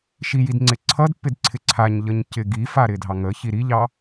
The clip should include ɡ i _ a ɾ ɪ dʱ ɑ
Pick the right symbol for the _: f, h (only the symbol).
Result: f